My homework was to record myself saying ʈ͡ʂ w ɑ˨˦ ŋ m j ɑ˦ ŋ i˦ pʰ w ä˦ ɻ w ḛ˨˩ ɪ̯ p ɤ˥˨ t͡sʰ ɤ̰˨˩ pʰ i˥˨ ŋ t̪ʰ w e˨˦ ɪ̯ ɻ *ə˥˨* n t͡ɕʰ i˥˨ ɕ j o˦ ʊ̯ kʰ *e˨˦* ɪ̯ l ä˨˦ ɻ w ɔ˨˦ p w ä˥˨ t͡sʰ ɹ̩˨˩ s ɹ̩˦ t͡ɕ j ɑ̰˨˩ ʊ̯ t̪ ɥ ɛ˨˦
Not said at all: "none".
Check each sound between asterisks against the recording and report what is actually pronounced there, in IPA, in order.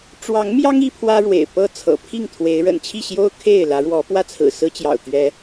ə̰˨˩, e˥˨

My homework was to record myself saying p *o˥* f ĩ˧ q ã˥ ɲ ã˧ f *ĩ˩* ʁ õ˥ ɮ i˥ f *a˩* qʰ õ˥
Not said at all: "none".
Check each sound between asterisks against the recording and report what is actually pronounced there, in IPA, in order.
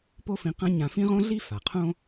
o˥, ĩ˥, a˩

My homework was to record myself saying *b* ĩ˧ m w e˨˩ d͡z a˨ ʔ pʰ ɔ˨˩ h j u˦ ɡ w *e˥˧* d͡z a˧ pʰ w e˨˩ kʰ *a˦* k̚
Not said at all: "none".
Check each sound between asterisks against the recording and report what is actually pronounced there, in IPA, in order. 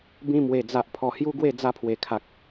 b, e˥˧, a˨

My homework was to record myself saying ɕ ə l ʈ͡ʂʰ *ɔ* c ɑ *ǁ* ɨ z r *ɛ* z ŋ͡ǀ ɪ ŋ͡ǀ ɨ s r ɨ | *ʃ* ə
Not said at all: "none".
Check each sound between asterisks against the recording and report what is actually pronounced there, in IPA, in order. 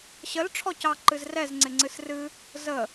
ɔ, ǃ, ɛ, z

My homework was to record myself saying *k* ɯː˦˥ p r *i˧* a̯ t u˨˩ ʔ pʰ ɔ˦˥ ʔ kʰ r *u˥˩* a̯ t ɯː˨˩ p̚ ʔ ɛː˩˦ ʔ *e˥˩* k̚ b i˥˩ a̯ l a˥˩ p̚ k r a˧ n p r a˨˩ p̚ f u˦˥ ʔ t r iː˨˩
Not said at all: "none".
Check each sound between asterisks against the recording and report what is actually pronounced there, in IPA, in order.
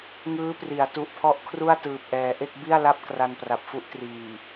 ŋ, i˩˦, u˥˩, e˥˩

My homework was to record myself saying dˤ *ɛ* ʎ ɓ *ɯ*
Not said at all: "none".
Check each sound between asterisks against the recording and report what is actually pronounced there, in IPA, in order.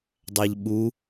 æ, u

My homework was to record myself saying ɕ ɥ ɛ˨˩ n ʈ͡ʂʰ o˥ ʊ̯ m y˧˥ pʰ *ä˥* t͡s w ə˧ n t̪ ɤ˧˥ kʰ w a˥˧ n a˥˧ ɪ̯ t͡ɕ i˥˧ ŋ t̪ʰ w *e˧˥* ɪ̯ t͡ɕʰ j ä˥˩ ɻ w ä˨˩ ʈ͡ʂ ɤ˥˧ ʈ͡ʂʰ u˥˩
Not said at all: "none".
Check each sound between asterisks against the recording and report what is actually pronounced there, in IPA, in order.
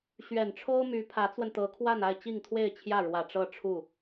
ä˧˥, e˥˧

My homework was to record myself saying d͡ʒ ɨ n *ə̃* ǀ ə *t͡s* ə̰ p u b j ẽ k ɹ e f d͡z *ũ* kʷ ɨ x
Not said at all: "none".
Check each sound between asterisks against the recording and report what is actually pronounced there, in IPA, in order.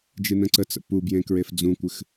ə̃, t͡s, ũ

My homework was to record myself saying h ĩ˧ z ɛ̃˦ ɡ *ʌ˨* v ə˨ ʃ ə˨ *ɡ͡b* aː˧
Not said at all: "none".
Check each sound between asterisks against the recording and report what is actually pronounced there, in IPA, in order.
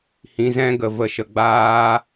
ə˨, ɡ͡b

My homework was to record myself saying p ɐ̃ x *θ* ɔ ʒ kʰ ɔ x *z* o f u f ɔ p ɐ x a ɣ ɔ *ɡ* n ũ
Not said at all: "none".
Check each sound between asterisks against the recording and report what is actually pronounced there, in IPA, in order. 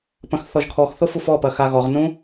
θ, θ, ʁ

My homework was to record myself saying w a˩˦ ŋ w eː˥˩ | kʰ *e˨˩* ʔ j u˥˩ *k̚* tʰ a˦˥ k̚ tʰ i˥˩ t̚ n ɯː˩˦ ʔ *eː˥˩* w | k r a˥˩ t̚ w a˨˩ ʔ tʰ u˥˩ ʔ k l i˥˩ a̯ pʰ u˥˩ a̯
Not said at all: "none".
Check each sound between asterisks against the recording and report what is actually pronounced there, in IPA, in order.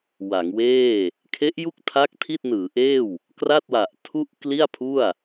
e˦˥, k̚, eː˥˩

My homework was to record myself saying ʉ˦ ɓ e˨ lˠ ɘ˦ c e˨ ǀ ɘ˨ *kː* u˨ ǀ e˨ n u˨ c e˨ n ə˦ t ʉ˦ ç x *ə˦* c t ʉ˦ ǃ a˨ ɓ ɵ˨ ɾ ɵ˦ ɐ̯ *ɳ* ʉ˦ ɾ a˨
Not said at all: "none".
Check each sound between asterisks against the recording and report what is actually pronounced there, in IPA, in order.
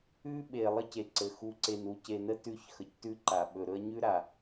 x, ə˨, ɲ

